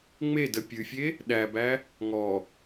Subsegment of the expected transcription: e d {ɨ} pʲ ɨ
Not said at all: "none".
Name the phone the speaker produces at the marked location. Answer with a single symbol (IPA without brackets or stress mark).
ə